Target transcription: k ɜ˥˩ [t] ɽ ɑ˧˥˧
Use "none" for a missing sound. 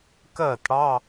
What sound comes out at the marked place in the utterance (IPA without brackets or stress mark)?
t